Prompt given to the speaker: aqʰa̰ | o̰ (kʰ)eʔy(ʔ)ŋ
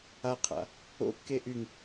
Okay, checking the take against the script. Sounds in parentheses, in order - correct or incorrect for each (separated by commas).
incorrect, incorrect